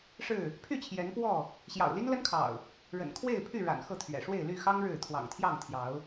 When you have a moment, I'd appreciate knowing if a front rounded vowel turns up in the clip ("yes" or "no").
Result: yes